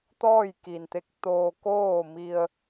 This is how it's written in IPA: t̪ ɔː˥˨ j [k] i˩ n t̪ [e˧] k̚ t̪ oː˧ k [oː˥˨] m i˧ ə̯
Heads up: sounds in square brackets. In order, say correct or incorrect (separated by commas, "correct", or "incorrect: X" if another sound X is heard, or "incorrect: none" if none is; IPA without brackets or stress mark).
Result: correct, incorrect: e˧˥, correct